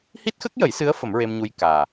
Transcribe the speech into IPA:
h i˦˥ t̚ x ə˦˥ k̚ j ə˨˩˦ j s ɨ˧˥ ə̯ f ə˨˩˦ m ɹ e˧ m ɲ u˧ j k aː˨˩

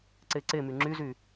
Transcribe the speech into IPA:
ǀ e ǀ e m y ŋ͡ǁ y z y

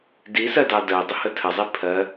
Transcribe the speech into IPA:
d i s ɜ d ɑ d ɜ dˤ ə h ə tʰ ə zˤ i pʰ ɜ

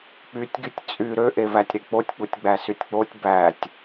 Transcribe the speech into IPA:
k͡p y tʲ ɡ y tʲ t͡sʼ y ɾ ø ʔ e v æ tʲ ɾ e k͡p o tʲ k͡p u tʲ ɡ͡b æ s y tʲ k͡p o tʲ b æ tʲ

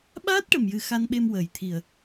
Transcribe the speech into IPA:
ɓ aː˦˥ t̚ ʈ ə˨˩ m j ɨ˨˩ x a˧ n ɓ e˧ m w əː˨˩ j t̪ʰ i˨˩ ə̯

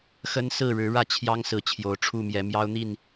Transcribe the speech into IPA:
x ə˦ n s ɹ̩˥˨ ɻ ɻ̩˨˦ ɻ ä˥˨ t͡ɕʰ j ɑ˦ ŋ s ɹ̩˨˦ t͡ɕʰ j o˨˩ ʊ̯ ʈ͡ʂʰ u˥˨ m j ɛ˨˦ m j ɑ˦ ʊ̯ n̪ i˥˨ n

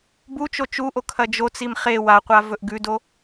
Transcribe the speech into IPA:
b u t͡ʃ o t͡ʃ u ʔ o kʰ ɐ d͡ʒ o t͡s i m χ e w a qʷ a v ɵ ʔ ɡ ʉ d o

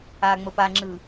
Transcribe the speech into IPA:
a ŋ͡m ə p a ŋ͡ǁ ɯ

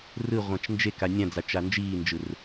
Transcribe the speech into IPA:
r ɯ ʁʷ ã t͡ʃ n d͡ʒ e k a nʲ ã d͡z a t͡ʃ a n d͡ʒ iː n d͡ʒ ɯ r

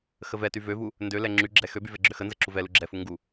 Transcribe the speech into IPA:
x ə v ɛ t y v ø v u | n d ø l ɛ ŋ͡ǁ y ɡ͡ǁ ɛ x ø b y v ɛ ɡ͡ǁ ø x ə n z ə ǁ u v ɛ l u ɡ͡ǁ ɛ f u ŋ ɡ u

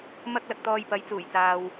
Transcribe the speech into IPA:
m ɐ˥ k̚ l ɐ˨ k̚ t̪ ɔː˧ j p ɐ˨˥ j t͡s uː˨˩ j t͡s aː˨ w

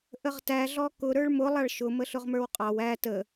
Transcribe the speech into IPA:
ʔ ə ʁ t æ ɮ ɔ k ʊ ɾ ə˞ ɭ m ʊ lˠ ɑ ɭ ʃ ʊ m ə ɬ ʊ ʁ m ə˞ w qʼ ɑ w æ t ə

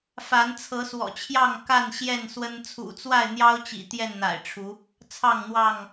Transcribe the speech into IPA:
f a˨˦ n t͡sʰ ɤ˨˦ s w ɔ̰˨˩ t͡ɕʰ j ɑ˥˨ ŋ k a˥˨ n ɕ j ɛ˥˨ n s w ə˦ n t͡sʰ ṵ˨˩ t͡s w a˥˨ ɪ̯ n̪ j ɑ˦ ʊ̯ t͡ɕ ḭ˨˩ t̪ j ɛ˥˨ n n̪ a̰˨˩ ɪ̯ ʈ͡ʂʰ u˨˦ | t͡sʰ ɑ˥˨ ŋ n̪ w ɑ˥˨ ŋ

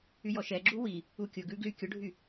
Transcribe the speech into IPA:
y j ɔ ʃ ɛ ɡ͡ǁ u w i | u kʲ ʊ ɡ ʉ ɡ l y kʲ ʊ ɖʱ y

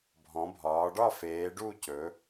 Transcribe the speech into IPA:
bʱ ɔ̃˩˧ bʱ ɒː˩˧ ɖ ɒ˦˨ f eː˩˧ ɖ u˦˨ c ɵ˩˧

